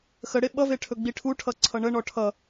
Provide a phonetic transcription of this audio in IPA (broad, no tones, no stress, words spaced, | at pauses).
xəɽe ɓʌve ʈʰɵɡ͡biʈʰuʈʰʌ ǀʰʌɳəɳɔ ʈʰʌ